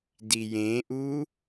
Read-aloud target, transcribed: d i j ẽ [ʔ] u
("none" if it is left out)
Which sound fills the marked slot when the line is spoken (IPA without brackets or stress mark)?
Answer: ʔ